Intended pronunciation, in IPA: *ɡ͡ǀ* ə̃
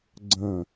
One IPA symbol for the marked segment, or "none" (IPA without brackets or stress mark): ɡ͡ǀ